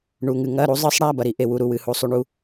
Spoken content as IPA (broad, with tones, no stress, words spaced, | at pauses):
ɳu˧˥˧ŋɨ˧˥ ŋɐ˧˥˧ɾu˧˥zˤɨ˧˥sˤɽa˧˥˧ bɐ˧˥ɾi˧˥ ʔe˧˥wu˧˥ɾu˧˥˧ wɨ˧˥ hu˧˥sˤu˧˥˧ɳu˧˥